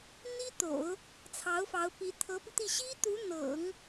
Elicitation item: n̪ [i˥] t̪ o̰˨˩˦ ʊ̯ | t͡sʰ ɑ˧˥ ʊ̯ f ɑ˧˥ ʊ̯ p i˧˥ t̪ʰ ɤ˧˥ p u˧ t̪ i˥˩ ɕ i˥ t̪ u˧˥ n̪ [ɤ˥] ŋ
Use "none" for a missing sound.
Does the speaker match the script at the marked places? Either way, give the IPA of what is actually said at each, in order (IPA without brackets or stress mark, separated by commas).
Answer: i˥, ɤ̰˨˩˦